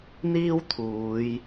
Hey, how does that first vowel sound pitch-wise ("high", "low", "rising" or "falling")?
high